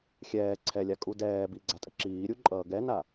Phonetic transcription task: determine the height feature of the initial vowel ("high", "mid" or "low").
mid